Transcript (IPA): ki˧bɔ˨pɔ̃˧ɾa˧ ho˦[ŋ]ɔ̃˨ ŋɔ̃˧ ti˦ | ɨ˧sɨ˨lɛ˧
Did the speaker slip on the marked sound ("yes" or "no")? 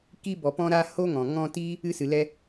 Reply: no